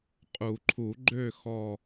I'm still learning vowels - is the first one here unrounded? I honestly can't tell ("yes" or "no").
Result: no